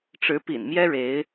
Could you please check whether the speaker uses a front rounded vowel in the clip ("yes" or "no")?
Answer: no